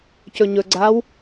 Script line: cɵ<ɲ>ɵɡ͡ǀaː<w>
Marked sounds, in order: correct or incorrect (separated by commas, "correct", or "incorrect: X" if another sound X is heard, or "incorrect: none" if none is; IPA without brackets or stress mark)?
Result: correct, correct